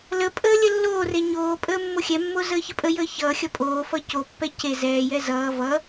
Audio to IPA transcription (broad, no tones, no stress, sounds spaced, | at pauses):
l ə pʼ əː lʲ ə lː oː r e ɲ oː pʼ əː mː o xʲ ɛ mː o z əː ç ə pʼ ə j əː ç ʌː xʲ ʌ pʼ oː f ʌ c o pː ɛ c e z ɛː j ɛ z ʌː v ʌ